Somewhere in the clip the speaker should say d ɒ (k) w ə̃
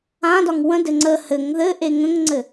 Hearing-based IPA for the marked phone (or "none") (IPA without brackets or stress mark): ŋ